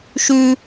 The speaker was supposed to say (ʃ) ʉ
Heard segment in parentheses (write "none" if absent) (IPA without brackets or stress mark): ʃ